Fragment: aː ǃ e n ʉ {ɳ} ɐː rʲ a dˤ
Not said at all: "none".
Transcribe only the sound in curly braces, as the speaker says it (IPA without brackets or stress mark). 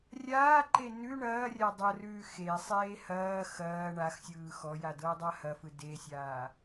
ɳ